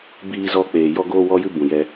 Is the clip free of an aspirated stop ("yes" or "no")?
yes